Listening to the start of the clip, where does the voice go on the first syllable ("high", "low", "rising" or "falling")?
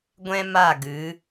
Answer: high